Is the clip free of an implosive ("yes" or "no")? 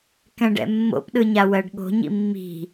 no